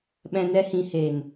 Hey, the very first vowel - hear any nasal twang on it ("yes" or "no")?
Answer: yes